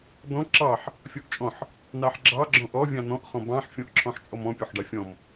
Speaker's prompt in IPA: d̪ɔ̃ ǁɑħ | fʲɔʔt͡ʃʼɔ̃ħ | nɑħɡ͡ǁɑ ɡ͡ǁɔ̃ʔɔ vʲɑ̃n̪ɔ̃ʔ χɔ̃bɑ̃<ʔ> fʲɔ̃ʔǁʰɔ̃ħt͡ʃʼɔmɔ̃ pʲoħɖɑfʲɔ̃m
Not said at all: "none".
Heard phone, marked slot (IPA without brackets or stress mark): ħ